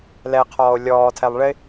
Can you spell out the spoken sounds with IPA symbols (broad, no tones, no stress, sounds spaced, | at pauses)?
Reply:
l ɛ qʰ ɔː o̯ lʲ ɔː tʰ ɛ lˠ ɭ ɪ